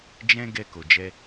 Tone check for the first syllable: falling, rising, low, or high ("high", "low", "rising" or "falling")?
high